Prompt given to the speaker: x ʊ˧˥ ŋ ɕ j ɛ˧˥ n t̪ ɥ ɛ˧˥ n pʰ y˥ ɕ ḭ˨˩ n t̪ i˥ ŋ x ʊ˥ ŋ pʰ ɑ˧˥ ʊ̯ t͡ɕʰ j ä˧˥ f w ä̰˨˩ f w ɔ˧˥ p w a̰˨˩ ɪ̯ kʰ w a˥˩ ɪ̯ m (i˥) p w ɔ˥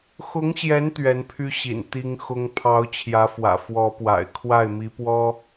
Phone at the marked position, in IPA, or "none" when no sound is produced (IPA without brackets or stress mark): i˧˥